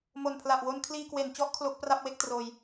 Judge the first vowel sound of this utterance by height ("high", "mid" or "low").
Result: mid